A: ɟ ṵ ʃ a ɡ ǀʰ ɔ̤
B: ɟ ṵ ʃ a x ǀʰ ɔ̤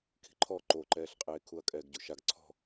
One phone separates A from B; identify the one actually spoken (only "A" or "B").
A